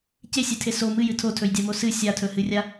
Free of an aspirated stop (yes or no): no